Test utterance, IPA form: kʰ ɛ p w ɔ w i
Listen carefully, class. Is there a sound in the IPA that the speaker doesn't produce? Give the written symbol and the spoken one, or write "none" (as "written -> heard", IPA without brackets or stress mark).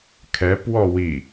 none